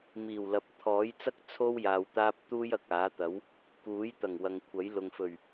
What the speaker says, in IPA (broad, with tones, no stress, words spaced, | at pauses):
miː˨˩wlɐ˨p̚ t̪ʰɔː˨˥jt͡sɐ˥k̚ t͡sʰo˥w jaː˧wt̪aː˥p̚ t̪uː˥jɐ˨k̚aː˨˥t̪ɐ˨˥w | kuː˨˥j t̪ɐ˨˩ŋwɐ˨ŋkʷʰɐ˨˥j lʊ˨ŋfɵ˨˩ɥ